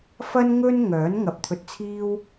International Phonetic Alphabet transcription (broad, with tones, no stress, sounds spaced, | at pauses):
f ɐ˥ n ŋ ɵ˥ n ŋ œː˨˥ n ŋ ɐ˨ p̚ t̪ʰ ɵ˧ t̚ t͡sʰ iː˥ w